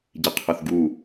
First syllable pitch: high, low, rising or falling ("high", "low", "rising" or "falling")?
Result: low